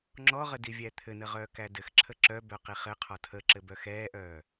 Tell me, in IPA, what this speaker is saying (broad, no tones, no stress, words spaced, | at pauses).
ŋ͡ǁɔʁə divʲæt̪ʰɘnə ʁœːkædɘxǁʰə ǁœbœ qiχɘqʰɒ tʰəǁɘ bœxɛːʔœː